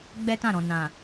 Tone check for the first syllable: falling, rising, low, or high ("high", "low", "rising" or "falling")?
high